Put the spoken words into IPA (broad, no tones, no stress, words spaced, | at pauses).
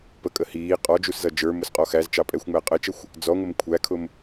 pəkʼə hiː qʼɔ d͡ʒuszʌd͡ʒə˞mʊs qʼɔxæzt͡ʃɑ pʼɛxʷŋ͡mæ qʼət͡ʃəxʷ | d͡zɔŋʷɪm kʷʰækʰʊm